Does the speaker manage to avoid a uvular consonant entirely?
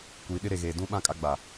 yes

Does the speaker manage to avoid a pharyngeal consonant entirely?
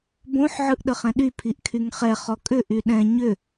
no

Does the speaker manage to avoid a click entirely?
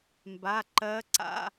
no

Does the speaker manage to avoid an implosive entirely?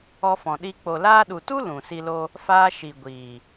no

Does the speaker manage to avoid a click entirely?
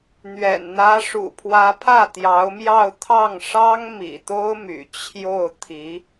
yes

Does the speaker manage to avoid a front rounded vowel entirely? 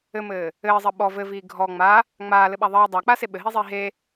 yes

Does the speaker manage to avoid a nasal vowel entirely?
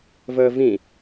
no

